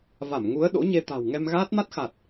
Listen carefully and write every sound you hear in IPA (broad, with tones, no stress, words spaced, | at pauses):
va˧˩mŋu˨˦ə̯ ɗo̰˧˥ɲe˧t̪a̤˨˩w ŋɛ˧mɣaː˦˥t̚ ma˦˥t̚xa˨˩t̚